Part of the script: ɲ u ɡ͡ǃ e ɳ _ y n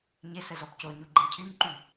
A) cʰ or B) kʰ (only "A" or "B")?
A